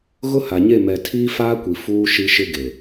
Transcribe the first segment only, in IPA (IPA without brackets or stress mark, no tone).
ɣ